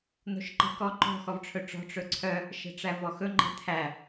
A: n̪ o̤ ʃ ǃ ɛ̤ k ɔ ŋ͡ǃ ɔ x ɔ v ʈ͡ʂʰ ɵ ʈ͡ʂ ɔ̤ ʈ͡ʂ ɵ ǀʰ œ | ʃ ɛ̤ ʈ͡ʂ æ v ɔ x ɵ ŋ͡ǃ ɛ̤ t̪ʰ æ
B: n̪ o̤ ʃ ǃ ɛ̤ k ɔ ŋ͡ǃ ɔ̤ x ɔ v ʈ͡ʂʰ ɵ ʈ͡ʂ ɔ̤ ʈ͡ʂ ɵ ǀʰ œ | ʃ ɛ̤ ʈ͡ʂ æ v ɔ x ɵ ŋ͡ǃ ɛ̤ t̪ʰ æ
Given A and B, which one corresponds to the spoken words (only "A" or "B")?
B